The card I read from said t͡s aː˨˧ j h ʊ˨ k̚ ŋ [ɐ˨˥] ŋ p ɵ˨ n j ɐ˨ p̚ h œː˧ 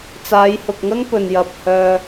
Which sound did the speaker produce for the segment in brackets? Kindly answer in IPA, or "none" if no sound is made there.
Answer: ɐ˥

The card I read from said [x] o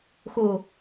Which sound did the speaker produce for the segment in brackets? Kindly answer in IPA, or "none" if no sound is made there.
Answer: x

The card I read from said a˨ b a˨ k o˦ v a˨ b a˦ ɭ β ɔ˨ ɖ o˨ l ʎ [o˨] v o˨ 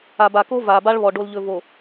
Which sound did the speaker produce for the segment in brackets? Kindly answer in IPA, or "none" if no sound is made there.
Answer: ɵ˨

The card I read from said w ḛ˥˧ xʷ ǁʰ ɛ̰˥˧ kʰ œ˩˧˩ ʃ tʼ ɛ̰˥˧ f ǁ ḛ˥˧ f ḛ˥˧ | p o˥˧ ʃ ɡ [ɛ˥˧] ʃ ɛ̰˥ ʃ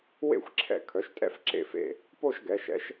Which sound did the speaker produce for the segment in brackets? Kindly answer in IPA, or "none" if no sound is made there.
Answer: ɛ˩˧˩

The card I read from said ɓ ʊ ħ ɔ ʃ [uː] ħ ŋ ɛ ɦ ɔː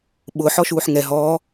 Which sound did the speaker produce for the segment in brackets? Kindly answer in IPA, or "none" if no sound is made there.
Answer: uː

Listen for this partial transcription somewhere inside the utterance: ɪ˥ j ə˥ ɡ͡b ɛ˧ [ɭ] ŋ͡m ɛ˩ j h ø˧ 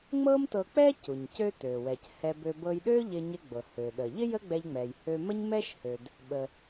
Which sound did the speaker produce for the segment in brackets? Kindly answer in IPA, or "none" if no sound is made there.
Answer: ʎ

